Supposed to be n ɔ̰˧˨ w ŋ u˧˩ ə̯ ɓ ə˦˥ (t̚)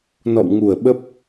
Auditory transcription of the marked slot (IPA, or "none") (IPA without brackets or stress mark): p̚